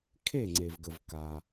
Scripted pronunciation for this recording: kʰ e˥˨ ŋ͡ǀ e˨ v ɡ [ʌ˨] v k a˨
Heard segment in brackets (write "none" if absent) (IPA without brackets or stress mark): ə˨